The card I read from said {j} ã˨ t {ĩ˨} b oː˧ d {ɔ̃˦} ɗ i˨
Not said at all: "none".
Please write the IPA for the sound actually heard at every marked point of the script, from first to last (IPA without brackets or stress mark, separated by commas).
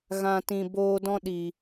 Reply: ɣ, ĩ˨, ɔ̃˦